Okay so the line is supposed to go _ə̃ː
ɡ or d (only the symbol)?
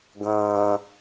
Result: ɡ